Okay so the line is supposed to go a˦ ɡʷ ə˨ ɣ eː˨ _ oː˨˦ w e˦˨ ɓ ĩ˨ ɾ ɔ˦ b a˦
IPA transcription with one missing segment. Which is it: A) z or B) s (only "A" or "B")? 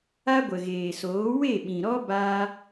B